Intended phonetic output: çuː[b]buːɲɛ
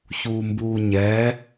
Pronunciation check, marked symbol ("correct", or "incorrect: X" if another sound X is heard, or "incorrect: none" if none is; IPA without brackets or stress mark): incorrect: m